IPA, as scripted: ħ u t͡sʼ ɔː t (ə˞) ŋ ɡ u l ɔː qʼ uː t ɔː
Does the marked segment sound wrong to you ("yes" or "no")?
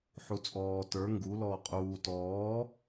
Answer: no